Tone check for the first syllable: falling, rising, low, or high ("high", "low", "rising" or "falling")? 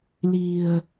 low